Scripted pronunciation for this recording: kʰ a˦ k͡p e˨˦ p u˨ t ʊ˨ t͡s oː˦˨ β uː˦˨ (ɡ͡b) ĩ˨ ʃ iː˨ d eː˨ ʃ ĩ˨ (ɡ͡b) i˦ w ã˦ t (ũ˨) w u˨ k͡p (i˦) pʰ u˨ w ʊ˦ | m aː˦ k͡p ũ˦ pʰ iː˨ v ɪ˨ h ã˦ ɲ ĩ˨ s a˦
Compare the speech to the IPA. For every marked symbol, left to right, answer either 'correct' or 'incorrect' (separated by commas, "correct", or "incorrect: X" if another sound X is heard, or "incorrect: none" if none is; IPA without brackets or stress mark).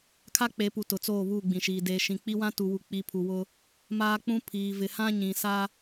correct, incorrect: k͡p, incorrect: u˨, incorrect: i˨˦